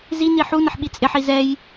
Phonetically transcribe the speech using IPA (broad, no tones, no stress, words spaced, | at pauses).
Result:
zini ħunəħɓi t͡sʼɪħi zɛj